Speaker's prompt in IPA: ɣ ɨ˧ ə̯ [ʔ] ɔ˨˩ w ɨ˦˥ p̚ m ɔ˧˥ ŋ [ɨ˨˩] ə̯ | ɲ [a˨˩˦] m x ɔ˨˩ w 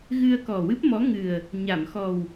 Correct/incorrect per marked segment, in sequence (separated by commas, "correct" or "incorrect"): incorrect, correct, incorrect